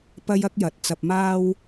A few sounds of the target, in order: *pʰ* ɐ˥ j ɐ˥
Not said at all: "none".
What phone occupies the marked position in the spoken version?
p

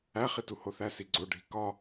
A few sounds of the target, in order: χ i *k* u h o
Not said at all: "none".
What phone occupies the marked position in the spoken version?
t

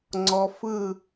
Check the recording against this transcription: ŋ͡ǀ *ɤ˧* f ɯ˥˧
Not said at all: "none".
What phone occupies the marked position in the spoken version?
ɔ˧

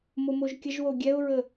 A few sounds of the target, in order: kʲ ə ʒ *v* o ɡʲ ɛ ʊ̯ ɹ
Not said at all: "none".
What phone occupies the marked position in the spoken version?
w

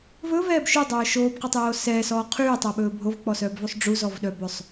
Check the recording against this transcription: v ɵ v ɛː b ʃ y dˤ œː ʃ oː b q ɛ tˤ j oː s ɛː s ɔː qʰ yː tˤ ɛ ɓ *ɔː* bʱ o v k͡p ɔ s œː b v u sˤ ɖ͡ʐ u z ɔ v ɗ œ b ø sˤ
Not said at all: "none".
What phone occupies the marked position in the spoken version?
ɵː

